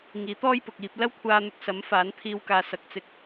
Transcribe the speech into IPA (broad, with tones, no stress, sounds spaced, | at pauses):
ŋ iː˨˥ t̪ ɔː˥ j p ʊ˨ k̚ iː˧ p̚ l ɐ˥ w kʷʰ aː˧ n̪ ʊ˧ k̚ s ɐ˨˥ m f aː˨˥ n t̪ʰ iː˧ w k aː˨˧ s ɐ˨ k̚ t͡s ɪ˧ k̚